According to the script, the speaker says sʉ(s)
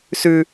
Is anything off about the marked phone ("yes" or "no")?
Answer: yes